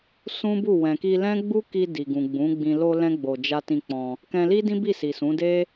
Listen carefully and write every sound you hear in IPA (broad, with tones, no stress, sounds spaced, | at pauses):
s ũ˦ b u˦˨ w ɛ̃˨ k i˧ l ɛ̃˦ ɡ͡b u˦ k i˧ d i˨ ɡ ũ˨ ɡ͡b ũ˨˦ ɡ͡b ĩ˧ l o˧ l ɛ̃˦ ɡ͡b o˧ d͡ʒ a˦ t ĩ˧ k͡p ɔ̃˧ | k ɛ̃˧ l i˦ d ĩ˦ b i˦˨ s i˨ s ũ˨˦ d e˦